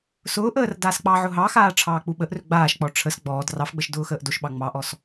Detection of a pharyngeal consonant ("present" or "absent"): present